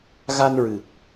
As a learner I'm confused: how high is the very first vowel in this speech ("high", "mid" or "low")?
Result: low